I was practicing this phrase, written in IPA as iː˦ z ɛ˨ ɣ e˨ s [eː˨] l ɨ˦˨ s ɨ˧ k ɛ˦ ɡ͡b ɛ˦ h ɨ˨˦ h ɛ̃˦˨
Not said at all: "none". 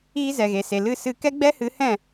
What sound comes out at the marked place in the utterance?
e˨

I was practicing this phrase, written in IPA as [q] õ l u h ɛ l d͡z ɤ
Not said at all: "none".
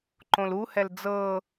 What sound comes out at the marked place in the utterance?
ǃ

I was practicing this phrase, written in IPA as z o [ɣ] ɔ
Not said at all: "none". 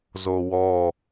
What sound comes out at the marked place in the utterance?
w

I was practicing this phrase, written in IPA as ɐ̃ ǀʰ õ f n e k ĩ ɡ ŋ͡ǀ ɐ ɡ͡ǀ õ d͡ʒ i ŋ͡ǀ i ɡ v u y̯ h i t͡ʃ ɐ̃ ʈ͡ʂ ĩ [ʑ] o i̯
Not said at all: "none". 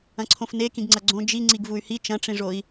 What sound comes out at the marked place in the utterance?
ʐ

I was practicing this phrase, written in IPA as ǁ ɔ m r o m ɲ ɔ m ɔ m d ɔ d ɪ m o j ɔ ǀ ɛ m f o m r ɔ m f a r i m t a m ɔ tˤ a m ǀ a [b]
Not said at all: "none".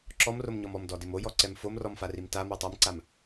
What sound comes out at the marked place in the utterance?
m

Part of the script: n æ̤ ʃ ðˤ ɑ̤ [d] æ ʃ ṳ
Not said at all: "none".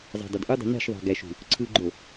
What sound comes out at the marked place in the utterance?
ɡ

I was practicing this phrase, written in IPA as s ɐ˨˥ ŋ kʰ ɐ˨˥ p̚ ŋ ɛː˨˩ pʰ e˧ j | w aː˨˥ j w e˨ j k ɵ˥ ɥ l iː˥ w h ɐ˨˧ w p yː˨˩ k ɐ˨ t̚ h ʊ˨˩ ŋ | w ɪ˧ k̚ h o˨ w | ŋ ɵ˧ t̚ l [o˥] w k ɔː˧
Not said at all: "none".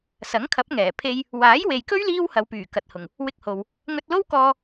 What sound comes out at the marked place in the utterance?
o˥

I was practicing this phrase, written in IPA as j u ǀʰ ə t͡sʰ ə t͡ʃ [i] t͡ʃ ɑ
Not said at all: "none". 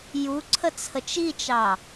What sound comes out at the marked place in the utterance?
i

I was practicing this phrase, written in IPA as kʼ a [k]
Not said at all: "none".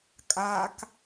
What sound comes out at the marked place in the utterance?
k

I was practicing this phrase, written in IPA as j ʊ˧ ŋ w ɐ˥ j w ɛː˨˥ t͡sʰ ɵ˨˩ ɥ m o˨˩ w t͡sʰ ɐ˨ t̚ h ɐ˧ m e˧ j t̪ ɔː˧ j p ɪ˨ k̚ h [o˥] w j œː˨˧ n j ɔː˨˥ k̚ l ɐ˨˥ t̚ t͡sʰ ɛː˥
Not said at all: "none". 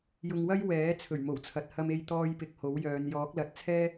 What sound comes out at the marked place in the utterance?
o˨˥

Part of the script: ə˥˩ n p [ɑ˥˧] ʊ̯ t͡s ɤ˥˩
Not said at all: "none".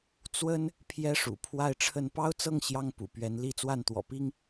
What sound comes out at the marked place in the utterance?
ɑ˥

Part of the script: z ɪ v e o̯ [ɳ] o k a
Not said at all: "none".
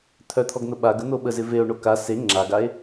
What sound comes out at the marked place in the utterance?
ɳ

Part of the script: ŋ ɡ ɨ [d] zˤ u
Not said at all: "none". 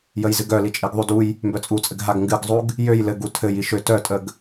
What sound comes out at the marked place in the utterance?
ɡ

